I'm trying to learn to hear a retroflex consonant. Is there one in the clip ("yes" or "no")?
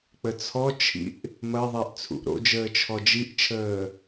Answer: no